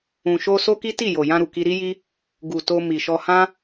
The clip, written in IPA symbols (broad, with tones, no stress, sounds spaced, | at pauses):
ũ˨ ʃ o˧ s o˦ k i˦ t i˦˨ j o˨ j ã˧ ɾ u˨ k i˧ ɾ i˦ j i˦ | ɡ u˨ t o˧ m i˨ ʃ ɔ˧ h ã˦